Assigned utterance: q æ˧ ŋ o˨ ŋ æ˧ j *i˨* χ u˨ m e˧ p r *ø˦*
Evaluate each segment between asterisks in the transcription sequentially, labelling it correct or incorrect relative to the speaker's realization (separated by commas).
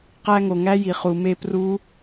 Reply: correct, incorrect